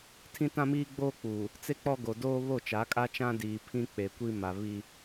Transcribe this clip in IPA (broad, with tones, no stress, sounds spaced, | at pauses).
tʰ ĩ˦ t ã˦ m iː˦ ɡ͡b oː˦ k͡p uː˨ | t͡s e˦ k͡p ɔ˦ ɡ o˨ d oː˦ β o˦˨ t͡ʃ a˨˦ kʼ a˦ t͡ʃ ã˦ d iː˨ pʰ ĩ˦ k͡p e˨ kʷ i˦ m a˨ β i˦